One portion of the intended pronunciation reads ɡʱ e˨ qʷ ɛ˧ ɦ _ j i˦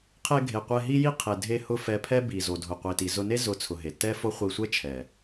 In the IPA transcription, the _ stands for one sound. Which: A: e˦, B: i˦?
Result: B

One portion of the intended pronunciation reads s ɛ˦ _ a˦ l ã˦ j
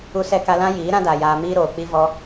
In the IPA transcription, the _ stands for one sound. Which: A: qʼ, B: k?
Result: B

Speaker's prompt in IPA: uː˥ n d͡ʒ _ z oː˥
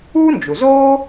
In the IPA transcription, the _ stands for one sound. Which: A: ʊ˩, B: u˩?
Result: B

